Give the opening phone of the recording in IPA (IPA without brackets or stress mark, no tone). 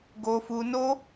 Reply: ɡ